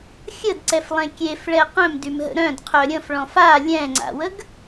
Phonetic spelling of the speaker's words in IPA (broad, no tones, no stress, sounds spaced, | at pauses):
xʲ ə d ǀ ɛ f lˠ ẽ kʲ e f ɭ ɛ q œ̃ m d y m ɦ ə̰ ɾ œ̃ d qʰ œ ɾʲ ə̃ f ɭ ɔ̃ f a lʲ ɛ̃ ŋ͡ǀ a̰ w ə ɡ